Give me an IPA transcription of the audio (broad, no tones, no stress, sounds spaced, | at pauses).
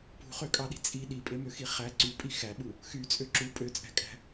p ṳ χ ø kʼ ɑ ɗ i̤ t͡sʼ i ɗ i pʼ e m ø x i χ æ ǀ y pʼ i x æ ɓ u | x y t͡sʼ ø ǁ u pʼ ø t͡sʼ æ̤ kʼ æ̤